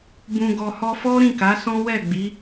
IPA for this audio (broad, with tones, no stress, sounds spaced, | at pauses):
b ũ˨ ɡ ɔ˨ h ɔ˧ f ɔ˦ ɾ ĩ˦˨ k a˨˦ s ɔ̃˦ w ɛ˦˨ ɡ͡b i˨˦